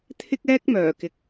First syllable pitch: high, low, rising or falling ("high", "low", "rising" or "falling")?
high